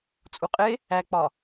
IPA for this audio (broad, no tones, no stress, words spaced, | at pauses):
t͡sʼuqʼe | æk͡pɒ